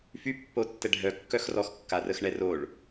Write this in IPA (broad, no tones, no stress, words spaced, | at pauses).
fypːo tːɛɖʱœ kːœxrɔx kːarəxɳɛroɭ